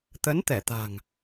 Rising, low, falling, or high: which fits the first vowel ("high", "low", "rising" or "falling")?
rising